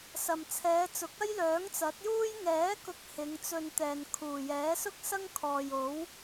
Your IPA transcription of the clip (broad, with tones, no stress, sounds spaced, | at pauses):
s ɐ˨ m t͡sʰ ɛː˨˧ t͡s ʊ˨˥ k̚ ɐ˥ j l œː˨˥ ŋ t͡s ɐ˨˥ t̚ j uː˥ j ŋ ɛː˨˥ k ʊ˨˥ k̚ h ɪ˨˧ ŋ t͡s ɵ˧ n t̪ ɛː˨ n kʰ uː˨˩ j ɛː˨˥ s ʊ˥ k̚ s ɐ˥ ŋ kʰ ɔː˨ j o˨˥ w